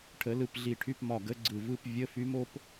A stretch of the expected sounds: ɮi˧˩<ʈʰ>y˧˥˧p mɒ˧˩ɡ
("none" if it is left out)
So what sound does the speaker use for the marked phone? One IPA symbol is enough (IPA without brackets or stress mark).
ʈʰ